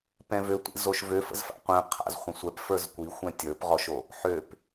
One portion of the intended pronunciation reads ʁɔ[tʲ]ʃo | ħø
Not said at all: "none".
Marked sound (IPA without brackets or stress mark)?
none